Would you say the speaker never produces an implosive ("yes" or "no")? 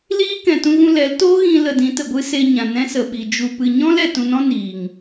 no